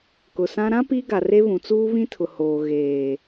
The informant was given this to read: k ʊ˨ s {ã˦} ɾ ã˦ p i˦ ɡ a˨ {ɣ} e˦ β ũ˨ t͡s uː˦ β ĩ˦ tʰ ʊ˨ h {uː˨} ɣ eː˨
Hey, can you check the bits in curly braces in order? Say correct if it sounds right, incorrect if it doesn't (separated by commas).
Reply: correct, incorrect, incorrect